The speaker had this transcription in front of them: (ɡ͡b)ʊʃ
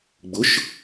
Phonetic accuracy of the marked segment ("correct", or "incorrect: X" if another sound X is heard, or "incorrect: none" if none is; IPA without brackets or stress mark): correct